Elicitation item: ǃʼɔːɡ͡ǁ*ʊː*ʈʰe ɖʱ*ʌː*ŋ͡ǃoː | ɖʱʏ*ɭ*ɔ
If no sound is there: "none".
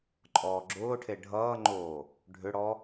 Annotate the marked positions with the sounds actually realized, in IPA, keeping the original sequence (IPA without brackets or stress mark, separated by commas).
ʊː, ʌː, ɽ